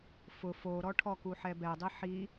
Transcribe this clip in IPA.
f ʊ f o ɾ ɔ ʈʰ ɔ k u ħ ɛ b ɛ dˤ i ħ i

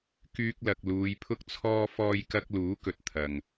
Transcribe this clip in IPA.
k yː˧ k̚ l ɐ˨ k̚ l uː˨˧ j pʰ ʊ˧ k̚ t͡sʰ ɔː˧ f ɔː˧ j k ɐ˧ k̚ l uː˨˥ k ɵ˨ t̚ t̪ʰ ɐ˨ ŋ

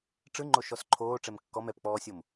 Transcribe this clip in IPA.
ʈ͡ʂ ɯ ŋ͡ǃ o ʃ ɔ s ǃʰ oː ʈ͡ʂ ɛ m kː ɔ m ɛ p k͡p ɔː sʲ o m

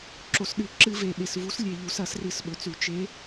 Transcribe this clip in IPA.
ǁ o˩ s ɗ ɨ˧˩˧ ǁ ɨ˧˩˧ v e˩ ɓ e˩ s v u˨˦ s lʲ e˩ ʎ u˧˩˧ s ɐ˧˩˧ s r ɨ˧˩˧ s ɓ ɵ˩ t͡s ʉ˧˩˧ t͡ʃ e˨˦

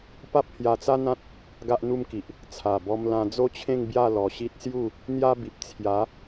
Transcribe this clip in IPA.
p a˦ p̚ h j a˧ t͡s a˦ n̪ ã˦ t̚ | ɡ a˦ ʔ n̪ u˦ m k i˨ ʔ | t͡sʰ a˨˩ b ɔ˧ m l ã˧ d͡z o˦ t͡ɕʰ ẽ˥˧ ŋ b j a˥˧ l ɔ˨˩ ɕ i˦ t̚ s j u˥˧ | n̪ j a˦ b i˨ p̚ t͡sʰ j a˨˦

